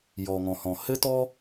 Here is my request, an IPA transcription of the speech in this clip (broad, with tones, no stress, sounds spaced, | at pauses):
j ɔ˩ ŋ ɔ̃˩ h ɔ̃˩ h ɘ˥ t ɔ˥